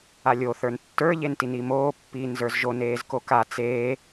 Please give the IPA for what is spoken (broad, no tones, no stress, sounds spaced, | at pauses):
a lʲ o θ ə˞ n tː ə˞ ʎ e n t i n i m oː pː iː n z ə˞ z ʒ o n eː z k o k a t͡s eː